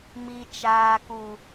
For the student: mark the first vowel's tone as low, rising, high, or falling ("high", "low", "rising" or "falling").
low